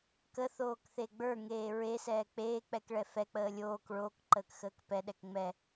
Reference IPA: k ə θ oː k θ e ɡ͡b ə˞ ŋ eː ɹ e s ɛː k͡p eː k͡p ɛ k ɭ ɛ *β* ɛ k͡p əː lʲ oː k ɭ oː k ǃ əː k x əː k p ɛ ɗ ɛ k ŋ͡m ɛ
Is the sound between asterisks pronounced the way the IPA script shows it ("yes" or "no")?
no